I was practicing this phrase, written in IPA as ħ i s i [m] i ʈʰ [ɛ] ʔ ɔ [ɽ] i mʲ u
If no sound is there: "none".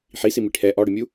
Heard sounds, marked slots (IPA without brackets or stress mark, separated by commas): m, ɛ, ɽ